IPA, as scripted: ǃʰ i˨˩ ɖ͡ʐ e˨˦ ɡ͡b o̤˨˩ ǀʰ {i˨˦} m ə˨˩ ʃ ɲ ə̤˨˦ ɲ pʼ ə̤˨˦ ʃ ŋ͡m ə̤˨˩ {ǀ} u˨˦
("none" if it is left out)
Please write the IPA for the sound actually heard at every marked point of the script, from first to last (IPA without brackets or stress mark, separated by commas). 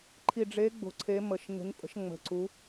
e˨˦, ǀ